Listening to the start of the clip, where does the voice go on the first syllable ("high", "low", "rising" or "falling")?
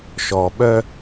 low